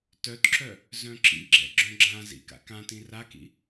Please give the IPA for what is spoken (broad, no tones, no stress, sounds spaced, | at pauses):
t œ t ǁ œ | z œ̃ ǁ ḭ ɡ͡ǁ ɛ̰ ɡ͡ǁ œ̃ ɡ͡ǁ ã z ḭ k a̰ k ã t ĩ r a k ḭ